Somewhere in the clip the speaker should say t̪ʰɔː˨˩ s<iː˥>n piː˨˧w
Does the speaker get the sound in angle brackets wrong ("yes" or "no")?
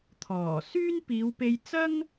yes